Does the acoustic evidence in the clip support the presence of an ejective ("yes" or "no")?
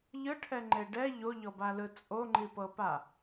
yes